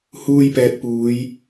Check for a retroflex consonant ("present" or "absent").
absent